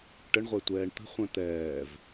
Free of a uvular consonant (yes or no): no